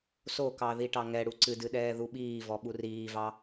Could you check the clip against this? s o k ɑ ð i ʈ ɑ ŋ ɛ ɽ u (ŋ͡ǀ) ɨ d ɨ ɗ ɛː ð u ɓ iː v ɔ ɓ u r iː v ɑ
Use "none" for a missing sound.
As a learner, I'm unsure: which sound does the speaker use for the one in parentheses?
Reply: ǀ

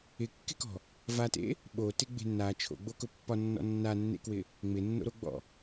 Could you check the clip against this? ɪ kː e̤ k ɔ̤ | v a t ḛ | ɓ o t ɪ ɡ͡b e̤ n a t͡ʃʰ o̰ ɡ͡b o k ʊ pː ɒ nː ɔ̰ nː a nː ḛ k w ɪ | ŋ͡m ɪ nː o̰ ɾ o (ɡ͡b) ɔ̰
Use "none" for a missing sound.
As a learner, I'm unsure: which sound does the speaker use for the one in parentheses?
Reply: ɡ͡b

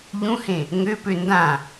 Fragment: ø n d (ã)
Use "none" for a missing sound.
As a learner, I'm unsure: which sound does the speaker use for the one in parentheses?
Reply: ã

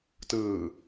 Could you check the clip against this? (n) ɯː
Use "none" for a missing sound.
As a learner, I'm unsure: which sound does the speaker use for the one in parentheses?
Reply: t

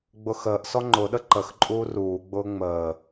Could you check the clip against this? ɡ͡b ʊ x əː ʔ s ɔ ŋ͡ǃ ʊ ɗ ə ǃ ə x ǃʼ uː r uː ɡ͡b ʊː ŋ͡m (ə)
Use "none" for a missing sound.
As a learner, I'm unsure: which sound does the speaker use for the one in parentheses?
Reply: əː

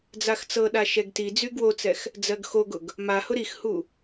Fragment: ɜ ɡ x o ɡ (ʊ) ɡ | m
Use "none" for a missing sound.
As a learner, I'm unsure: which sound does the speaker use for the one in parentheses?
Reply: ʊ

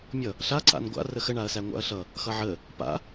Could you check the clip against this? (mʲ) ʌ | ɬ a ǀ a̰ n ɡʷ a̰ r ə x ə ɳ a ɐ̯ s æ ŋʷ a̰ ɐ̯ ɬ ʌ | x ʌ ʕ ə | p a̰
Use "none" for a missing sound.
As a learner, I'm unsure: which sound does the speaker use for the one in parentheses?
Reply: mʲ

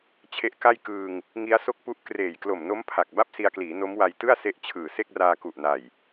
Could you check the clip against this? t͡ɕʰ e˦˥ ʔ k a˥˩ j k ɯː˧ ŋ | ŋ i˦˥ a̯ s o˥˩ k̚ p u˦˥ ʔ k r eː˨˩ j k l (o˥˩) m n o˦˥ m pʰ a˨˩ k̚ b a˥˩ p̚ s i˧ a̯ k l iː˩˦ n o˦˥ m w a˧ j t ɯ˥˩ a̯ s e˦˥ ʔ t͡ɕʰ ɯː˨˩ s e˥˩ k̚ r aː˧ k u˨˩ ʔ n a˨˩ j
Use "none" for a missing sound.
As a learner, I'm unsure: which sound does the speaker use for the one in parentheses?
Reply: o˨˩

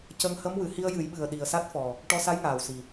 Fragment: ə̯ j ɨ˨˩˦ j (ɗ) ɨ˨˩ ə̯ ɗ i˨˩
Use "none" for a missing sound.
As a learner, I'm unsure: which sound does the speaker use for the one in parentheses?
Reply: ɓ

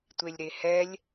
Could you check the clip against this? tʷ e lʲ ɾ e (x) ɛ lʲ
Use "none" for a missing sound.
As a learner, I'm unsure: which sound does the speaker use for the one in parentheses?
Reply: h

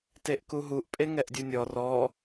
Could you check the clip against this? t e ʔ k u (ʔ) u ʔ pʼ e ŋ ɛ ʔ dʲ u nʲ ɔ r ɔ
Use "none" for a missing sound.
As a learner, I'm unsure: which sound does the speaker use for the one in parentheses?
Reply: ɦ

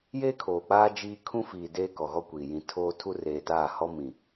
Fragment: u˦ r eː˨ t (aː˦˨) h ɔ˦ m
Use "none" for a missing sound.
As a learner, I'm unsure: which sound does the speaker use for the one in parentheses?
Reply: aː˦˨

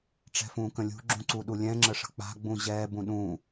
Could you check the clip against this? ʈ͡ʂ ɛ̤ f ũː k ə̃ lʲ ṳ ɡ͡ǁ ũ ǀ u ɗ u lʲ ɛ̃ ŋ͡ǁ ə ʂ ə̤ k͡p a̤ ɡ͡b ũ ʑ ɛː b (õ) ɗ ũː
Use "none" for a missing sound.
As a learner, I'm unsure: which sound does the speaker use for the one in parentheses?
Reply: ũ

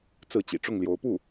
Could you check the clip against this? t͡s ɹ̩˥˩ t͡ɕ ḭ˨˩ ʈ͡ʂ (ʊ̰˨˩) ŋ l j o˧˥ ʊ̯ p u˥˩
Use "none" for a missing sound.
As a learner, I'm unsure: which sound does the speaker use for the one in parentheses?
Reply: ʊ˥˩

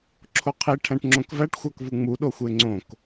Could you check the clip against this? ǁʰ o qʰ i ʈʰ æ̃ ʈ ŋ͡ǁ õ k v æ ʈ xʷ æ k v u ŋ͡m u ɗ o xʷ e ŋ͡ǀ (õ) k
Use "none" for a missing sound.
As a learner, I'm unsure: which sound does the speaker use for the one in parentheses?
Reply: õ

